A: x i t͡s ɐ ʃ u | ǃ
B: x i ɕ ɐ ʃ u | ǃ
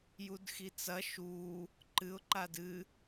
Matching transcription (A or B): A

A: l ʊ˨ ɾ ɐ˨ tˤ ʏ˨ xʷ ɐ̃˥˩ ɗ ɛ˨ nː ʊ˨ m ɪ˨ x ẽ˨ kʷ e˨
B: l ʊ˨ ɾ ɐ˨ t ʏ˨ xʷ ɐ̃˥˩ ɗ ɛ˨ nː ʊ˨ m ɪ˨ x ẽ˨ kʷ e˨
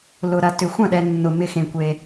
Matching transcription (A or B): B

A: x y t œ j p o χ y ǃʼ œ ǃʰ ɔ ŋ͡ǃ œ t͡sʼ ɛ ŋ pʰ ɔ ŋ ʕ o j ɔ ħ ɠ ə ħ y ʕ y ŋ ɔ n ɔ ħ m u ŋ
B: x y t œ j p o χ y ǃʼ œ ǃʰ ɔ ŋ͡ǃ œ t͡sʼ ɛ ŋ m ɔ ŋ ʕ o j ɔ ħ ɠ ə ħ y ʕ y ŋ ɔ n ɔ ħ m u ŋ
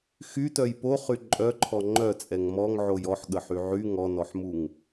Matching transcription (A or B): B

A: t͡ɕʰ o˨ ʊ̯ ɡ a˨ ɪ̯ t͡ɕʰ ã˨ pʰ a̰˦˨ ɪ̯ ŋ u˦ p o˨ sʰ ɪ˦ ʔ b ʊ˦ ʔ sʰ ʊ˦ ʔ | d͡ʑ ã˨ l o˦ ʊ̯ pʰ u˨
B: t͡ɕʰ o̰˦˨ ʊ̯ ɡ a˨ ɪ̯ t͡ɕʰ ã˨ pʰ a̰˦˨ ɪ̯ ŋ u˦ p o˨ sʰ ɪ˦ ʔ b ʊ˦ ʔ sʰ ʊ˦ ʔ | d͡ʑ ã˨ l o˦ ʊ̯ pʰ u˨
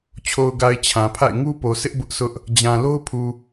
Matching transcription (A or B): A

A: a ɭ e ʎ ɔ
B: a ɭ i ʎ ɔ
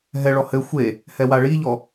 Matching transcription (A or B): B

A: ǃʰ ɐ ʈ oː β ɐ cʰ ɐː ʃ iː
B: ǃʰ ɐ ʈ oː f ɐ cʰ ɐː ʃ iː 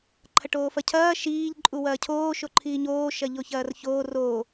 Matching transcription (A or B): B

